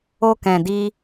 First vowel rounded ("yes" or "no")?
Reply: yes